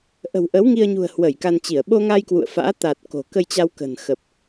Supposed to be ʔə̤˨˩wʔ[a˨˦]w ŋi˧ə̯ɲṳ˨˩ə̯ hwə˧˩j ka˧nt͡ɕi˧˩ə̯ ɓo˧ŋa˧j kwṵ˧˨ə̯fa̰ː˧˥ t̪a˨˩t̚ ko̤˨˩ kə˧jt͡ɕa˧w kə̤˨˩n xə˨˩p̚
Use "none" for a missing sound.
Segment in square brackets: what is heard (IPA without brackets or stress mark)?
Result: ə˨˦